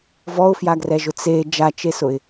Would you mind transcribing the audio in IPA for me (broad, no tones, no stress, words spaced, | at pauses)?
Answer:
vɔʊ̯fjaɡrɛʒʊ t͡se d͡ʒat͡ʃesʊɪ̯